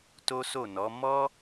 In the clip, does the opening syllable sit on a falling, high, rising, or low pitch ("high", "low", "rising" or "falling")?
high